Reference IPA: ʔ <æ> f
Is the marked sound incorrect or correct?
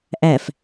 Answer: correct